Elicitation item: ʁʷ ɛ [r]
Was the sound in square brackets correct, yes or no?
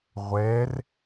yes